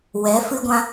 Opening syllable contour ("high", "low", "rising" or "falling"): rising